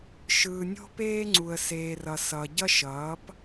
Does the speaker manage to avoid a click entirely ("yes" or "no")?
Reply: no